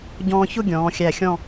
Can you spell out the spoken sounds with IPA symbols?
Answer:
ɟɔ̃ː˧çʊ˥˧ɡʲɔ̃ː˩˧ xʲæ˧˩xʲɔ̃˥˧

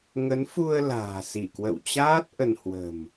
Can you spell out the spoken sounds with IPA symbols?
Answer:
ŋə˨˦nfu˧ə̯ la̤ː˨˩si˧˩kwə̰˧˨wt͡ɕaː˦˥t̚ ʔə˧n hwə̤˨˩m

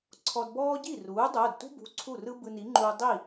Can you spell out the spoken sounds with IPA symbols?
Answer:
ǀʰɔ˧dbɔː˥ ɟi˥˩ruː˩˥ dˤoː˩˧˩dtṳ˥bṳ˩˧˩ ǀʰu˥˩rɯ˥ bɯ˧ni˩˥ŋ͡ǃuː˧ dˤi˥˩

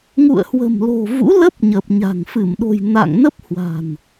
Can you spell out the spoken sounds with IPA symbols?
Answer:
ŋṵ˧˨ə̯hwə̤˨˩mlo̤˨˩ vṵ˧˥lə˦˥p̚ɲə˨˩p̚ɲa̤˨˩ŋ fɨ˧˩mɗo̤˨˩j na̰˧˨ŋnə˦˥p̚hwa̤˨˩n

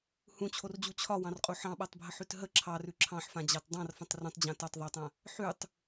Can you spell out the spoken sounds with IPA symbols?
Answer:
hũt͡ɕʰord͡ʑu t͡ɕʰɒwɑ̃rqʼu ħɑ̃ɓatˤbʱəħʉt ɦə ǁʰɑrʉ ǁʰɑ̃ħfãd͡ʑɑt dˤɑ̃rfə̃tˤ rũtˤd͡ʑã tɒtˤ ðˤɑtˤã | ħʉtˤ

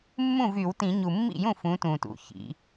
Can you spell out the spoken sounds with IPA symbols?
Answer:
mːũ˥˩vy˧˩˧wtĩ˧˩˧ ɲu˨˩mːḭ˥˩jũ˥˩ fũ˨˥tũ˨˩tṵ˨˩ çḭ˩˧

